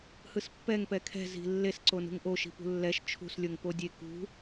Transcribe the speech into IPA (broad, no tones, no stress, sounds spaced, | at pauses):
h ɯ s pː ɛ ŋ p ɛ kʰ ɛ̤ z i̤ lː e s ǀ o n ṳ ŋ ʔ o ʃ i̤ p ṳ lː ɛ ʃ t͡ʃʰ ṳ s lʲ o ŋ p o dʲ e k ṳ